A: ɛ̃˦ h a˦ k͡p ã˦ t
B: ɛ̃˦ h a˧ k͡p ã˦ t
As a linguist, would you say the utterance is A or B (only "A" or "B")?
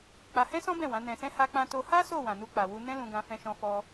A